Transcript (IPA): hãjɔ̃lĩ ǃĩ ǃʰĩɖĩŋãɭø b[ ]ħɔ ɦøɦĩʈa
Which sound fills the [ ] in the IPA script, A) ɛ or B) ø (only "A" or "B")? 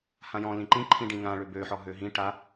B